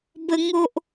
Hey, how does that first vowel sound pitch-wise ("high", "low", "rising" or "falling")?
high